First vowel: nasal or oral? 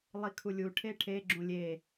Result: oral